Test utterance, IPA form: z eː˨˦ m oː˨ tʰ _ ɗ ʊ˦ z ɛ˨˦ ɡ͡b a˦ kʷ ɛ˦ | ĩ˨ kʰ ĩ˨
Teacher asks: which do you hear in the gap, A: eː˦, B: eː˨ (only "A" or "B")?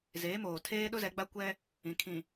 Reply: A